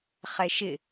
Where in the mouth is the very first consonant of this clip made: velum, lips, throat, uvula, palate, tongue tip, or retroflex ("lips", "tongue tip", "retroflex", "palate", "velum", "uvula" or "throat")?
uvula